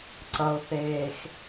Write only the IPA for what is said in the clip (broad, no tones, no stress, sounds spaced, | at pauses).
ǀ ʌ o̯ θ eː x